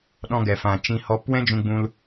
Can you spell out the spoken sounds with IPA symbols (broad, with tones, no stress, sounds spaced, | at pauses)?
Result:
ɗ ɔ̃˧ ɡ ɛ˨ f ã˨ t͡ʃ ĩ˧ h ɔ˧ p w ɛ̃˦ d͡ʒ ũ˧ ɡ͡b ũ˧ l